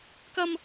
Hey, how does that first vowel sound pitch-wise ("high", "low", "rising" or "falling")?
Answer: high